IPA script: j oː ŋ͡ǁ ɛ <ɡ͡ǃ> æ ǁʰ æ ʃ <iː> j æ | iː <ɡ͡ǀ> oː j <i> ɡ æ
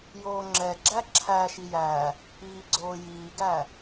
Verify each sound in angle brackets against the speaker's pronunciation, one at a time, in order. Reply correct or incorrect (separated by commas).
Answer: incorrect, incorrect, correct, incorrect